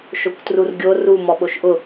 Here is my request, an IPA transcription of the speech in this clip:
ʃ o kʷ t r u r ɡʲ o r u m ɔ ɓ o ʃ ʔ ʊ

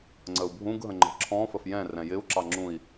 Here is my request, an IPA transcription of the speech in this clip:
ŋ͡ǀ ə u̯ bʱ ũ ɡ ɦ ə̃ ŋ͡ǃ ə̤ ǁʰ ɔ̃ f ə f j ɛ̃ r ɛ̃ j ɪ u̯ ǁ ɑ ŋ͡ǁ ũ i̯

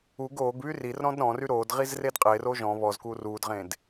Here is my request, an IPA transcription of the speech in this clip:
u ɡ oː ɡ β y r i r ɾ ɔ̃ d ɾ ɔ̃ r y ɾ oː d ʁ i z r e d qʼ e r o ʒ ɔ̃ β ɔ z k uː r uː d ʁ ẽ d

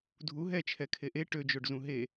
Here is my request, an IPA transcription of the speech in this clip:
dʱ u ɦ ɛ t͡ʃʰ ɛ kʰ e ʔ e ʈ ø d͡ʒ o ɖ z ũ ɦ e

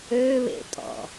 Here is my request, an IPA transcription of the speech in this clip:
ø β ḛ tʼ ɔ̰

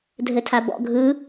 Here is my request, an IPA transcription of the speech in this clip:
dʱ ɘ tʰ a b ɔ̰ ɡʱ ɯ

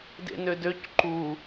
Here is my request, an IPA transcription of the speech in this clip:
d ḛ n ø d ø c ǃ u

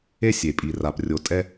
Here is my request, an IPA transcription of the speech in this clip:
e˦ sʲ e˨ pʼ i˨ r a˨ p rʲ o˨ tʼ ɛ˦

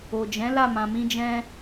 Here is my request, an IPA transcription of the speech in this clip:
o˨ d͡ʒ ɛ̃˨˦ l a˦˨ m ã˨ m ĩ˧ d͡ʒ ɛ̃˧

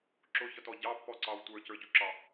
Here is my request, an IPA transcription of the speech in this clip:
ǁ ʊ ç ʌ t ɔ ɟ ɑ pː ɔ ǀ ɑ w tʷ ə˞ c ə˞ ɟ u ǁ ɑ

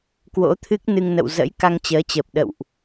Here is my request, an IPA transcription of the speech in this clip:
k w o̰˧˥ t̪ʰ ɨ˦˥ k̚ n ɨ˧ ŋ n ə̰˧˨ w z ə̰˧˥ j k a˧ ŋ t͡ɕ əː˨˦ t͡ɕ əː˨˩ p̚ ɗ ə̰˧˨ w ʔ

